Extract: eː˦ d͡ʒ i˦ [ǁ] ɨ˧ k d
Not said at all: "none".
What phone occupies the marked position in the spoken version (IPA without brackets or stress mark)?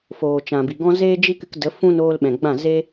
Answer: k